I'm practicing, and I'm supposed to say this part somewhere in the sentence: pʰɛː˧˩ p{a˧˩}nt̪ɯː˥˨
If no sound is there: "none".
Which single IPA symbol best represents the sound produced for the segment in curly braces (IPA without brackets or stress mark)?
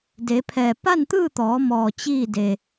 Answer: a˥˨